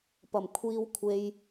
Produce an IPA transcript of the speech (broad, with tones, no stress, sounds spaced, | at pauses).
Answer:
p ɐ˨˩ m kʷʰ iː˧ w kʷʰ e˧ j